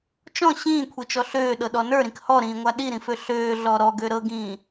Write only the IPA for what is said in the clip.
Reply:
t͡ʃɔ̃ ɕĩːkʷʰit͡ʃɔ ɬøːɗɤɗɔ nə˞ɾĩk hɔɾĩːŋʷa ɗiɾĩfø ɬøːɮɔ ɾɔɡø ɾɤɡĩː

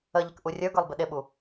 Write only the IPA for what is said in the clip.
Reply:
əʎɪk ʔurʲə˞ɡə˞lˠ bɪɗɪɓu

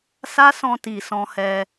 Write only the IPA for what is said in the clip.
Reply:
sa˦sɔ̃˧ti˨ sɔ̃˧hɛ˧

